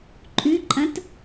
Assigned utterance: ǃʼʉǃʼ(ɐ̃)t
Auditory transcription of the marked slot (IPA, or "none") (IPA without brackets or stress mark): ɐ̃